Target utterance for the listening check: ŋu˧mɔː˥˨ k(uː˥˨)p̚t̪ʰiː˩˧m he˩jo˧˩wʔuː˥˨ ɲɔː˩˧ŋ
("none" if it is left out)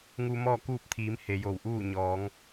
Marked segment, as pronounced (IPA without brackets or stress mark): uː˥˨